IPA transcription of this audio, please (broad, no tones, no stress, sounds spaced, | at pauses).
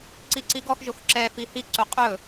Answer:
ǀ i ǀ i ɡ ɔ x ʒ o x ǁ ɛ f i h i ǀ o qʼ ɵ